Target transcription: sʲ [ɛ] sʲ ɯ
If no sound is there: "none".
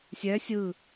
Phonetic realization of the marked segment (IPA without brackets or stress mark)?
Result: ɛ